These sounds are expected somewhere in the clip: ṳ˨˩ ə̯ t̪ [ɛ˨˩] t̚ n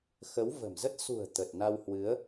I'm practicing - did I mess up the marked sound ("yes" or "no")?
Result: yes